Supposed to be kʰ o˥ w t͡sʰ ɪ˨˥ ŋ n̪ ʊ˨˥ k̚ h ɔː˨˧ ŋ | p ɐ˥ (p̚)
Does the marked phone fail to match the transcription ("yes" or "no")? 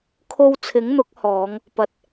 yes